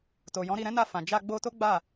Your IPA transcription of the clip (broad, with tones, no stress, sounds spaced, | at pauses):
t o˨ j ɔ̃˨˦ ɾ i˦˨ ɾ ɛ̃˧ n a˧ f ã˨ d͡ʒ a˧ ɡ͡b o˧ t o˦ ɡ͡b a˦˨